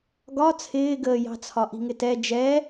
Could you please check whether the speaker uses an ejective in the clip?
no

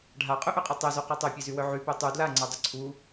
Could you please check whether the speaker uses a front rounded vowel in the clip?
yes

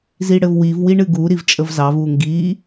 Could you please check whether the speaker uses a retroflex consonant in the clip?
yes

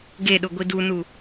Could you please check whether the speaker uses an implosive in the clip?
yes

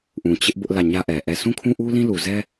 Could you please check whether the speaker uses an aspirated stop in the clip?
yes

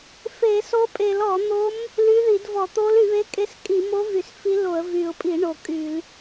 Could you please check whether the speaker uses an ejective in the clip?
yes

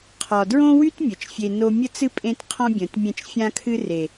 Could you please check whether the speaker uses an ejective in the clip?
yes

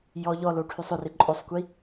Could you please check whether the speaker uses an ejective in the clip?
yes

